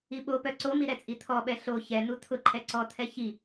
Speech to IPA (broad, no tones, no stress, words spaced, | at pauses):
iɓopœ ǀomi ɾɛt͡sʼit̪ʰɔɓɛ ɬo çɛn̪u t̪ʰʊǃʰɛ ǀɔt̪ʰɛ çi